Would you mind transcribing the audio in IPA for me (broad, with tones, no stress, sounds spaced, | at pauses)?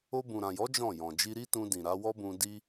o˧ b ũ˨ ɾ ã˨ j ɔ˨˦ d͡ʒ ɔ̃˦˨ j ɔ̃˨ d͡ʒ i˧ ɾ i˦ t ũ˧ d ĩ˨ ɾ a˨˦ w ɔ˦ b ũ˧ d i˦